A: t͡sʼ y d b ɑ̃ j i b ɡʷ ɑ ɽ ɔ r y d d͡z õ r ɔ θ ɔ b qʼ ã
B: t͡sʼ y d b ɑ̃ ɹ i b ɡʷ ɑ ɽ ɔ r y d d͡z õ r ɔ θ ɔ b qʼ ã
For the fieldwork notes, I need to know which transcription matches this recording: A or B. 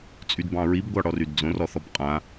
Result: B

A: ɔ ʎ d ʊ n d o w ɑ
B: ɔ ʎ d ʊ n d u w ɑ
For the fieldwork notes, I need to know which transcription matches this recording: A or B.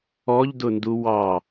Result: B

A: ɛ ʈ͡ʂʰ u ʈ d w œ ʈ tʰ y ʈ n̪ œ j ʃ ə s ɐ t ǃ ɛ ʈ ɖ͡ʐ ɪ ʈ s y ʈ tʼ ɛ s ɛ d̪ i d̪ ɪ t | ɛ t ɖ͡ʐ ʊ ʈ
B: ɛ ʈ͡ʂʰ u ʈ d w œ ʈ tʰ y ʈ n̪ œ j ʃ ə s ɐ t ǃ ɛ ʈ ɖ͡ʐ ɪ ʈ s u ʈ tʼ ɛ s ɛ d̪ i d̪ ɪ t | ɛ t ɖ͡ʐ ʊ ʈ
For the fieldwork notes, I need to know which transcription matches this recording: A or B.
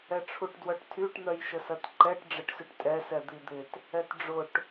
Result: A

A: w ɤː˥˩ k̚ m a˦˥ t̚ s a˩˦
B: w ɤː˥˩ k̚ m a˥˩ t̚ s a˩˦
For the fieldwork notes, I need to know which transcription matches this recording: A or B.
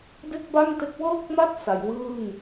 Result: B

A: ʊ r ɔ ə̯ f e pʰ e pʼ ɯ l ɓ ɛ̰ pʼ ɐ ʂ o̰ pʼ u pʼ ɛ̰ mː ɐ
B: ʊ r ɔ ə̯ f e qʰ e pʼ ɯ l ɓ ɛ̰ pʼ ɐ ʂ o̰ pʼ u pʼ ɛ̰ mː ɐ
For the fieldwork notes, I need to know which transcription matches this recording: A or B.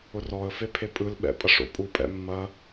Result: A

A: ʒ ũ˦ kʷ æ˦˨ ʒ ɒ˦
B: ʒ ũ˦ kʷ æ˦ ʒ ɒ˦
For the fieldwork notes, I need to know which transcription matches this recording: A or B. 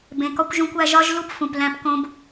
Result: B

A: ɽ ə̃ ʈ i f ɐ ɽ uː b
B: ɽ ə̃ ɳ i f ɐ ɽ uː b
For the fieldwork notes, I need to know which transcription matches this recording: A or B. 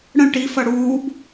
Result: A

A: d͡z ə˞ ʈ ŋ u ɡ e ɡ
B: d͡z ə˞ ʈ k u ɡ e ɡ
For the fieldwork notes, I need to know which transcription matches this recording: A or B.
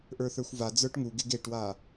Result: A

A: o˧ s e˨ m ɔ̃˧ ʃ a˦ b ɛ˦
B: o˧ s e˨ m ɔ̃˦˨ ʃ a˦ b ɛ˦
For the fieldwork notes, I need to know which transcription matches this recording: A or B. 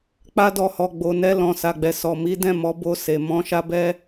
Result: A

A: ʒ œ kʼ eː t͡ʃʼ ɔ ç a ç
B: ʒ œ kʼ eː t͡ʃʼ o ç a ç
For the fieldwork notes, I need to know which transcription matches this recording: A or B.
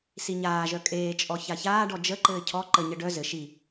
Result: A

